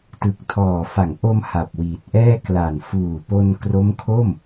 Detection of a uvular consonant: absent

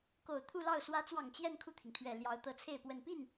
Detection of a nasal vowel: absent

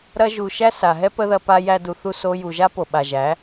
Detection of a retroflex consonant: absent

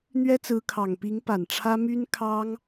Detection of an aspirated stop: present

